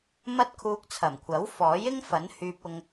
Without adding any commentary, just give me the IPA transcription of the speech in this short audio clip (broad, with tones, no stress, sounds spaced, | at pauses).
m ɐ˥ t̚ kʰ uː˧ k̚ t͡sʰ ɐ˨˩ m kʷʰ ɐ˨˥ w f ɔː˨˥ j ɪ˥ ŋ f ɐ˨˥ n h yː˧ p̚ ʊ˧ ŋ